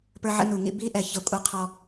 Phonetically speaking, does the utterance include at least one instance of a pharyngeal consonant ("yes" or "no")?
yes